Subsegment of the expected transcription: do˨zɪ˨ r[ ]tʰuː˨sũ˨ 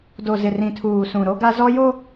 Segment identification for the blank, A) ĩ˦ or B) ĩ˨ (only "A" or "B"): B